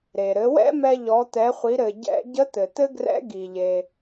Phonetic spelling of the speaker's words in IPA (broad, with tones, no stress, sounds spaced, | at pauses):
ɾ e˩ ɾ ɘ˩˧ w ɛ̰˥ m ɛ˧ ʎ ɔ˩˧ t̪ ɛ˩˧ χʷ i˩˧ ɾ ɘ˩ ɟ ɛ̰˧ ɟ ə˧˥ t̪ ɘ˩ t̪ ɘ˥ ɡ r ɛ̰˧˥ ɡ i˩ ʎ e˩